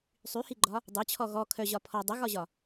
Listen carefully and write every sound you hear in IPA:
sˤyhiɡ͡ǃɒ | dˤœt͡ɕʰɔ ɣɔ kʰœʑɒ pʰɔ dˤəɣɒʑɒ

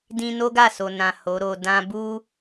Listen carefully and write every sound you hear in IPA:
dĩ˧no˦ɡa˦˨ so˨nã˨ ho˨˦ɾo˧ dã˧bu˦

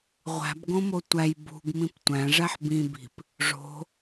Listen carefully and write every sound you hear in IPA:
ʁʷæ̤bɡõmo tʷæj bṳɡmĩp tʷæ̃ʐæħ bĩbi̤p | ʐo̤

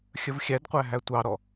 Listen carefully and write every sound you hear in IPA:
xʲəvxʲædqʷæ ɦætʷɑɾɔ

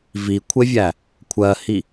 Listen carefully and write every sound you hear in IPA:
vikʷʰevʲæ | kʷʰɜhi

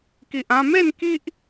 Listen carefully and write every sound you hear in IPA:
ki˨ʔã˧me˥˧n ki˦ʔ

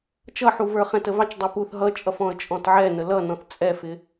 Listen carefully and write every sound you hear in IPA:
t͡ʃʌħuvə˞ χɛ̃təvɑt͡ʃ dˤɛpuθ ɦʌt͡ʃʼʌfɔ̃ə̯ t͡ʃʼɔ̃tʕɛnə lʌnɔ̃θ t͡sʼɛfɪ

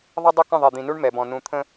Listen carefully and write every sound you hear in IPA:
ðˤʌ˦ dˤʊ˦ kə̃˦˨ðˤɛ˨d̪ĩ˨nu˦ɳ mɛ˨bɔ̃˨ nũ˨t̪ʰə̃˦

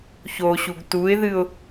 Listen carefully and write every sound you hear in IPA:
çoɕuɡ tuɪ̯ðɨʊ̯

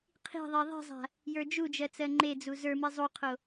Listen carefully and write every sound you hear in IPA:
qʰi̤ðˤe ðˤi̤zˤa̤ | jə˞d͡ʒud͡ʒɜ t͡sɜŋ͡ǃed͡zu zə˞mi zˤuqʰo

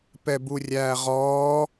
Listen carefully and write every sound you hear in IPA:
pɛburʲæːʁɔː

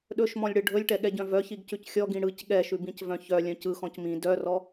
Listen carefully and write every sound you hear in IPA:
ɗɵʃmɔ̃lʲɽɯ ɖʱɵlʲʈɛɠɛɟœ̃ vœçiɡcʉc xʲɔɡĩ ɽɯc ɠɛʃʉbĩcvœ̃ çœlʲœ̃ cɯxɔ̃c mĩ dœrɔ

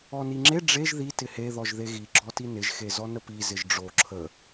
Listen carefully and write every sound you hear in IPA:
ɔniŋ͡ǁe ɖ͡ʐeʒ ði tɪhe ðɔʒðeɣi ɡ͡ǁɔtinɪʒ xezɔnəpi zɪʒɖ͡ʐo ǁʰə

